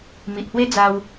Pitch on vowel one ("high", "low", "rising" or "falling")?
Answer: low